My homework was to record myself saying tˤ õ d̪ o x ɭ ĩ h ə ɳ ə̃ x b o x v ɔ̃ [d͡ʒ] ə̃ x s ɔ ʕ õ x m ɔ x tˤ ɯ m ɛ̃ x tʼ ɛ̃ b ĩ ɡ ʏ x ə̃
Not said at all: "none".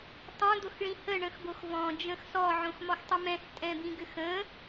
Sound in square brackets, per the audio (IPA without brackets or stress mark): d͡ʒ